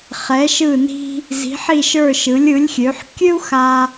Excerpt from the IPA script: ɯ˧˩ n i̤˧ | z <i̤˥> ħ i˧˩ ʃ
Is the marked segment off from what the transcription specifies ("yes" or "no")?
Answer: yes